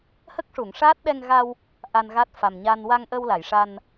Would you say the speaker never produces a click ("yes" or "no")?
yes